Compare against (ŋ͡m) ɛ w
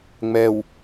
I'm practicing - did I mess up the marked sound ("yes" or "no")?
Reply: no